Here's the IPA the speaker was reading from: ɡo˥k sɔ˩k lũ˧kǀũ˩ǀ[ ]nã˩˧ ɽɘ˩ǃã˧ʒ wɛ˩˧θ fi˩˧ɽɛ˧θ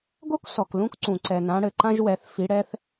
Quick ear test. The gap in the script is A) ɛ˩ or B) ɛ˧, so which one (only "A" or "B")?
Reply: A